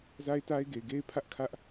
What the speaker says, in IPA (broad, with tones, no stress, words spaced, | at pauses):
za˦ɪ̯ta˦ɪ̯ɡe˨ɪ̯ ɡe˦ɪ̯pʰä˦ʔkʰä˦ʔ